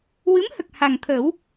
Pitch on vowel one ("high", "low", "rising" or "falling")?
rising